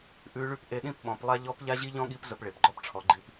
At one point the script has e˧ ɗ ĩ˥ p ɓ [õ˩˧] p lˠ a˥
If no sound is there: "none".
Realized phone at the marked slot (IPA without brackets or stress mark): ɔ̃˩˧